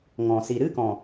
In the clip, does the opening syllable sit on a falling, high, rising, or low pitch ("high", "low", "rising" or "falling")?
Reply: low